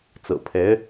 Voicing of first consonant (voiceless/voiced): voiceless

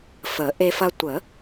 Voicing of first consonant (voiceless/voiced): voiceless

